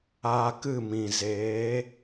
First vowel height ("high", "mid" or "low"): low